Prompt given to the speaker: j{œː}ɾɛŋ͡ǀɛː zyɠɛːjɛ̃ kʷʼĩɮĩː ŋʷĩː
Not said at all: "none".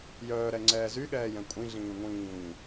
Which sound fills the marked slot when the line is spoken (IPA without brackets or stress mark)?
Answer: œː